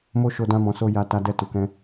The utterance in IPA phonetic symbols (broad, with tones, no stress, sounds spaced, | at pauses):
m o˦ ʃ o˧ d ã˦ m ɔ̃˧ s o˦ j a˧ t a˧ d ɛ˧ t u˨ k ɛ̃˧